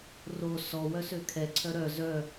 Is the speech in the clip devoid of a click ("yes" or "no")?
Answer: no